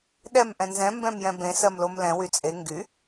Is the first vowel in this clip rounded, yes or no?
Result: no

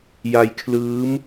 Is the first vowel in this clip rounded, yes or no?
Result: no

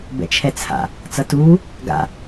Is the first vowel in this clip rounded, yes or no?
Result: no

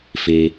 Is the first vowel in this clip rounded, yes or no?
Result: no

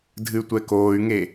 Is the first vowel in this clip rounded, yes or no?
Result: no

